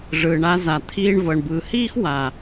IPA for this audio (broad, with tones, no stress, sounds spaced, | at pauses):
ʐ ɯː˨ ɳ a˧ z a˨ t̪ʰ iː˧ ɳ v ɤ˨ ɳ b ɯː˨ h iː˦ x w a˨